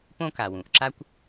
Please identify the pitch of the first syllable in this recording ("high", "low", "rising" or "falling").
high